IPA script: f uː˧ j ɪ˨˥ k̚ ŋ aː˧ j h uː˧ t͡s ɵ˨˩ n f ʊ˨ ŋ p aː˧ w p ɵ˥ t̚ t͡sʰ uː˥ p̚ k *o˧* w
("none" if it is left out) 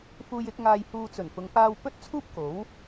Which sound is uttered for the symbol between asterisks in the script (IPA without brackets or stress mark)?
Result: o˨˥